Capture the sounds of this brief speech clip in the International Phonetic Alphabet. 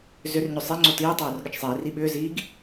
zʏrɲʏ sˤiŋ͡ǀo tiːtˤoːr ɠət͡ʃsˤiːri ɓʏːziːɡ

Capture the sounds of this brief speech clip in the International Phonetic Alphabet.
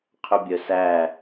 qʰʏbʲœsæ

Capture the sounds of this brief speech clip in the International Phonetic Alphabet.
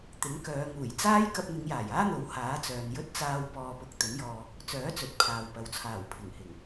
t̪ɪ˨˥ŋkœː˨˧ ŋuː˨˩jt͡saː˥j kɐ˧p̚n̪ɪ˨˧ŋjaː˨˩j aː˥n̪o˨˥w haː˨˥t͡sœː˨njɵ˥t̚ t͡saː˧w pɔː˧ pʊ˨˥k̚ t̪ɵ˨˥njɔː˧ | t͡sœː˨˥t͡sɵ˨t̚ pʰaː˨wpɐ˨wt͡sʰaː˨˩w pʰɪ˨˩ŋhɪ˨˩ŋ

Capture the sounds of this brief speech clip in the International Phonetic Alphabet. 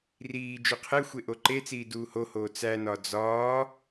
riː d͡ʒuqʰexʷe ʔoǃet͡siː duːhohoː t͡sænɒ d͡zɒː

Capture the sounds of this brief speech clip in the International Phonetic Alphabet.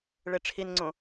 ɭeʈ͡ʂʰinŋ͡ǀõ

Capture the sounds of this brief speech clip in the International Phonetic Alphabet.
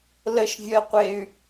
ləʃvʲɜqʷey̯

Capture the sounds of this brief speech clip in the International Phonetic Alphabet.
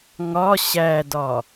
ŋɒ ɕædɒ

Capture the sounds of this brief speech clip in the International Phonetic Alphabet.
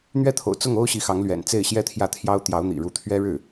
n̪ɥɛ˥˩t̪ʰo̰˨˩ʊ̯ t͡sʊ˥˩ŋo˥ʊ̯ ɕi˧˥xɑ˧˥ŋlɥɛ̰˨˩n t͡se˥˩ɪ̯ɕjɛ˥ t̪ʰjä˥˩t̪ʰjɑ˥ʊ̯ t̪jɑ˧˥ʊ̯n̪ḭ˨˩ɻu˧˥ t̪ʰɥɛ˥ ɻɻ̩˥˩

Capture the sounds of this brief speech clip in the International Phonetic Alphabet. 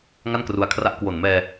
ŋa˥˩nkru˧a̯kʰra˦˥ʔ kwo˨˩nmɛː˧

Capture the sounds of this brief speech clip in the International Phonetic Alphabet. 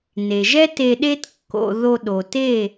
ne˩ʒɛ˥ te˧ɗe˥t kːo̰˧ ðo˧ɗo˩te˥˩

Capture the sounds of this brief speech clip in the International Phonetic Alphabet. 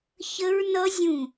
çə˦˥ɹnʌ˦˥zʲũ˧˩

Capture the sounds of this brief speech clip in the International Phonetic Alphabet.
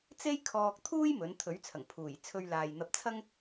t͡se˥jkʰɔː˧k̚t̪ʰuː˥j mɵ˨˥n t̪ʰɵ˨˥ɥt͡sʰɐ˨˩ŋpʰuː˨˩jt͡sʰɵ˧ɥ laː˨jn̪ɐ˧p̚t͡sʰɐ˥ŋ

